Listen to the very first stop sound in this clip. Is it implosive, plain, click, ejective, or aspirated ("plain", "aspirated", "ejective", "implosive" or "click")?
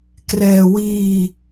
plain